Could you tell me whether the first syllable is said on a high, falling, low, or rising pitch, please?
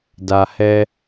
low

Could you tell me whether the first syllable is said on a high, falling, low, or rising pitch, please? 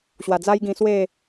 low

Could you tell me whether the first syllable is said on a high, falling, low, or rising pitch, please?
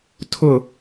falling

